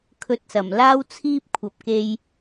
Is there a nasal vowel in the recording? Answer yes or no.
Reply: no